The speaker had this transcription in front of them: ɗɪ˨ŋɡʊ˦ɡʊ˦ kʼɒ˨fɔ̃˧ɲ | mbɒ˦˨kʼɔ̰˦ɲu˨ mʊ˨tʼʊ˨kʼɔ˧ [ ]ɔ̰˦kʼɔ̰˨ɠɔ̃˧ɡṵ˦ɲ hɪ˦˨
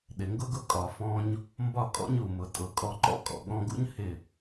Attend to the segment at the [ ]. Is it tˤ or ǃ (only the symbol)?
ǃ